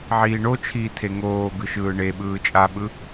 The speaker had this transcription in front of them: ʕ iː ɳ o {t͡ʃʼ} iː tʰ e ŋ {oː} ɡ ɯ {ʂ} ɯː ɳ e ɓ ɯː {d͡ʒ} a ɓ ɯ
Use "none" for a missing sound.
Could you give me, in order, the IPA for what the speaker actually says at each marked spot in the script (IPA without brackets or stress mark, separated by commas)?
t͡ʃʰ, oː, ʃ, t͡ʃʼ